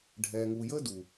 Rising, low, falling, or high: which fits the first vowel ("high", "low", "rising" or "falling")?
low